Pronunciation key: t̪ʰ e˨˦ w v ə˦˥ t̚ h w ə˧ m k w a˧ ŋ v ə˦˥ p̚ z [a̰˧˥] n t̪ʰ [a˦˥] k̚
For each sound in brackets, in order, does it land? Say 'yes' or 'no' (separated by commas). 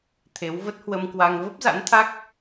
yes, yes